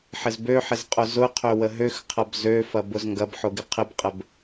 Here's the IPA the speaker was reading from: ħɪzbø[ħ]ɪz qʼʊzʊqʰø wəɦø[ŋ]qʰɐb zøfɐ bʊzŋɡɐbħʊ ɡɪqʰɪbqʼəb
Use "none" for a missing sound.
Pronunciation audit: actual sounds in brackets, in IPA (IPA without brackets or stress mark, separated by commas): ħ, x